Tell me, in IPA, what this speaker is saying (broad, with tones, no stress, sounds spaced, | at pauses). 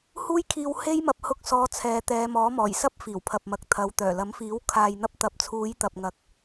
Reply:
h uː˥ j kʰ iː˧ w h e˥ j m ɐ˧ p̚ h ʊ˧ k̚ s ɔː˨˧ t͡sʰ ɛː˨˧ t̪ ɛː˨˧ m ɔː˨˥ m ɔː˨˩ j s ɐ˥ p̚ f iː˨˩ w pʰ ɐ˨ p̚ m ɐ˨ k̚ t̪ʰ ɐ˨˧ w t̪ œː˨˩ l ɐ˨˥ m f iː˨˥ w kʰ aː˨ j n̪ ɐ˧ p̚ t̪ ɐ˨ p̚ t͡sʰ uː˨˧ j t̪ ɐ˨ p̚ ŋ ɐ˨ k̚